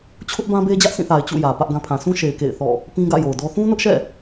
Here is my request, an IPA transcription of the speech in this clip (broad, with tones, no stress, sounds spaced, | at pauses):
t͡ɕʰ ʊ˦ ʔ b ã˦ b e˦ d͡ʑ ä˦ ʔ s ĩ˦˨ θ a˨ ɪ̯ t͡ɕ ṵ˦˨ j ä˨ p ä˦ ʔ ɡ ã˦ pʰ ã˨ s ũ˦ ʃ e˨ ɪ̯ k ḛ˦˨ ɪ̯ θ ɔ̰˦˨ | p ĩ˦ ɡ ä̰˦˨ j o˨ ʊ̯ d ɔ˦ θ ũ˦ n ʊ˦ ʔ ʃ ɛ̰˦˨